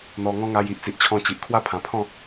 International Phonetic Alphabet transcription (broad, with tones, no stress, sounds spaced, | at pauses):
n̪ ɔ˧ ŋ ɔ̃˦ ŋ a˧ j i˨ ʔ t͡s i˨ ʔ t͡ɕʰ ɔ̃˧ t͡ɕ i˨ ʔ kʰ w a˥˧ pʰ ã˨˩ pʰ ɔ̃˥˧